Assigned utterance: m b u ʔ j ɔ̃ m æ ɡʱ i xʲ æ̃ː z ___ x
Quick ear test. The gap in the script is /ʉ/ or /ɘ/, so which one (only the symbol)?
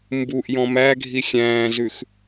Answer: ʉ